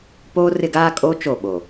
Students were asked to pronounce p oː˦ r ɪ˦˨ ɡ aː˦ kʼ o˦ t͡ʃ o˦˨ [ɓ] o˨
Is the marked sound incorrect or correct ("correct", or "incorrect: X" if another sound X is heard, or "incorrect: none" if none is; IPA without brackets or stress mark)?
correct